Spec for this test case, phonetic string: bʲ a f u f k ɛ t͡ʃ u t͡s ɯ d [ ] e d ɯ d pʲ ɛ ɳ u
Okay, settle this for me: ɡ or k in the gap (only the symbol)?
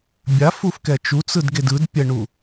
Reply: ɡ